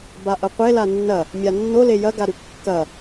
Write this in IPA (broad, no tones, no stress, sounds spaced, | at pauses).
b a ʔ ɐ qʷ e l a nː ɐ | mʲ a nː o l e j ɐ ɡ a ɾ ʉ kː ɐ